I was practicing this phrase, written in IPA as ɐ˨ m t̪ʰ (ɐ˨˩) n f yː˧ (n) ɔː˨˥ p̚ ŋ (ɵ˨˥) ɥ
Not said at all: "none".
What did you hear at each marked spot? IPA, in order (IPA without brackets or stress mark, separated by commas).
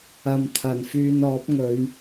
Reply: ɐ˨˩, n, ɵ˨˧